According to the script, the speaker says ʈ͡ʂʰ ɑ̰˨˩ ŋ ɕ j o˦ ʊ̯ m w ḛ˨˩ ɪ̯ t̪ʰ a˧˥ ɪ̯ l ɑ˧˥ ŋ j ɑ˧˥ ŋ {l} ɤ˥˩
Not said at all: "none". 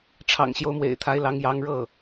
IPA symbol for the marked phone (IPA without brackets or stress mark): ɻ